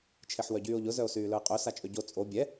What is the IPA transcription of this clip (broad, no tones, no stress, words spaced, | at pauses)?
t͡ʃʰeħwœɟyːo̯ʎʊ zœo̯syːlœe̯qʼø sat͡ʃʼøɟo t͡sʼo bʲɛ